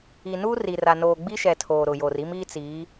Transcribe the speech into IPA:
i˨ n uː˦ r i˨ r a˨ n oː˨ ɡ͡b i˦ ʃ ɛ˨ tʰ oː˨ ɾ ʊ˨ j o˨ r i˦ m iː˦ t͡s iː˨˦

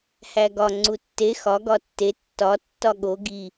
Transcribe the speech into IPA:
h æ ɡ ɒ ŋ͡ǀ u tː e x ɒ ɡ ɒ tː e tː ɒ tː ɒ ɠ o ɡ i

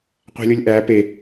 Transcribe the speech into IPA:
qʷ æ̤ lʲ o lʲ ʔ æː p e

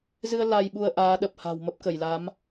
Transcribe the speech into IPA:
z ɨ˧ ə̯ l a˧ j ɓ u˧ ə̯ ʔ aː˨˦ ɗ ə˨˩ p̚ h a̤˨˩ w m ə˦˥ p̚ k ə˧˩ j l a˨˦ m

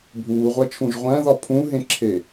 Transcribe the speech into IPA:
bʱ uː ʁʷ æ t͡ʃʰ ũ ʒ ʁʷ æ̃ ð ɒ pʰ ũ ɦ ẽ ǁʰ e

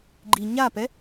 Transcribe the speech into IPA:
ɡ͡ǃ i ɲ a p ɛ

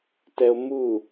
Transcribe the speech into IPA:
t ɛ o̯ m u

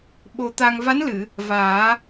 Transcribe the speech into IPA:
ɓ o˧ t̪ a˧ ŋ v a˧˥ n l ɨ˨˩˨ | v aː˨˩˦

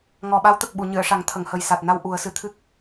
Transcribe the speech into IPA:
ŋ ɔ˨˩ ɓ a˧˥ w t̪ ə˨˩ k̚ ɓ u˨˩˨ ɲ ɨ˨˩˨ ə̯ ʂ a˨˩˦ ŋ t̪ʰ ə˨˩˨ ŋ h ə˨˩ j s a˨˩ t̚ n a˧ w ʔ u˨˩˦ ə̯ s ɨ˨˩ t̪ʰ ɨ˦˥ k̚

